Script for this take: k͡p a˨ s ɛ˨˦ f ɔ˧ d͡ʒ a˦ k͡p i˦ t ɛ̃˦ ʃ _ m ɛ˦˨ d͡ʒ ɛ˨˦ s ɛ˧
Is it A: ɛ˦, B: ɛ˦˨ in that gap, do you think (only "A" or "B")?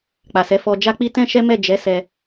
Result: A